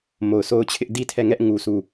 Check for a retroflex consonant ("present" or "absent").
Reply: absent